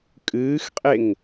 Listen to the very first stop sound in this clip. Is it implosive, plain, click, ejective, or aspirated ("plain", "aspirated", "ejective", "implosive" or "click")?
ejective